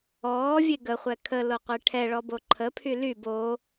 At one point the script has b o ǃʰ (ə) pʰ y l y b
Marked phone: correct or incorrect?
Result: correct